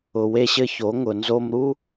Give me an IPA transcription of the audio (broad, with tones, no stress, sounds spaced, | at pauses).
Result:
ʊ˩ w e˧ ɕ ɘ˧ ç o˩˧ ŋ ʊ˩ n z o˧ m ɾ u˥